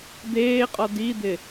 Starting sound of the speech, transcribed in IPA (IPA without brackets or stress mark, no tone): d̪